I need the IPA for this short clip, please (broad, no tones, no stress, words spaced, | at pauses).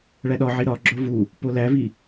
ɭæɗɒʕi ɾɒɡ͡ǁo vu | polævi